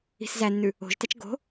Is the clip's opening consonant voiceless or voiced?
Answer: voiceless